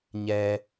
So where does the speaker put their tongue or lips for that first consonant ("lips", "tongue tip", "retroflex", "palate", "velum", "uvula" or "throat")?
palate